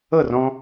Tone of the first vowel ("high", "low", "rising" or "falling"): falling